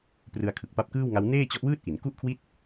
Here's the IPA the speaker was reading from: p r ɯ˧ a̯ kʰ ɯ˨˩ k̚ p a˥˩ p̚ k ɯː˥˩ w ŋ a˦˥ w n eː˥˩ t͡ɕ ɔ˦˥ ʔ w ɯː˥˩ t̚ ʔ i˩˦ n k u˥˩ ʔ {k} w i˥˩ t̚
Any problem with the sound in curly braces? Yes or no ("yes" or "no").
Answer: yes